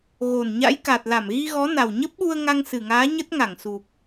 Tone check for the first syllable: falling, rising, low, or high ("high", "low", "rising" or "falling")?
low